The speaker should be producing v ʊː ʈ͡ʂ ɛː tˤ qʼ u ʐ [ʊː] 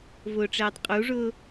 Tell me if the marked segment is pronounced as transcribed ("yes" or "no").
yes